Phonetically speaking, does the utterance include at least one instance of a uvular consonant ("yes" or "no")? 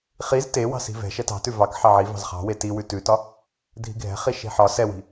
yes